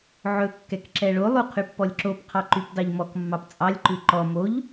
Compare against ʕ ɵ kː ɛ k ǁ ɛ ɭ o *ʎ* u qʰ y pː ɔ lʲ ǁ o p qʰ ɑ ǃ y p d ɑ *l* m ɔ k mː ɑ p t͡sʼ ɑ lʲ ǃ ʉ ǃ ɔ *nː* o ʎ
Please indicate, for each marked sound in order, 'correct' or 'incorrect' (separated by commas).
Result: incorrect, incorrect, incorrect